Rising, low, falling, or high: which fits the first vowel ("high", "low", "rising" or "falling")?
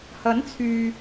rising